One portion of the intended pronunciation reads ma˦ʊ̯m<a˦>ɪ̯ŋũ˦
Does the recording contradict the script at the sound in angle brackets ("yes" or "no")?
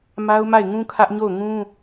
yes